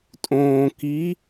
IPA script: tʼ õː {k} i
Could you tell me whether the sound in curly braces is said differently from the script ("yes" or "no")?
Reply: no